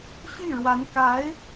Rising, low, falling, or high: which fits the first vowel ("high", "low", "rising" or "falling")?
falling